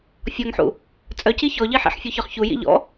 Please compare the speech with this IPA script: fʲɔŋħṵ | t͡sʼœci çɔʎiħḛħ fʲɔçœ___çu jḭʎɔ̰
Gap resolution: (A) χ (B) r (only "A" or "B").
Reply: A